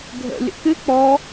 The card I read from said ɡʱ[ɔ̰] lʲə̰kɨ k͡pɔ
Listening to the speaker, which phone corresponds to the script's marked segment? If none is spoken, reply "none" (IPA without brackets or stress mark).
ə̰